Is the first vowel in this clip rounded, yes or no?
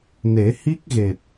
no